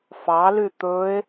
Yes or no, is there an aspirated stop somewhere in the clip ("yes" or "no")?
no